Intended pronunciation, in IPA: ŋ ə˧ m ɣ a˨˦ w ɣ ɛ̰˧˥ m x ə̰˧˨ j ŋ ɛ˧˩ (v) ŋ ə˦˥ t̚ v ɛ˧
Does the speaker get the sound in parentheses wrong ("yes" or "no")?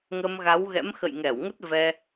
yes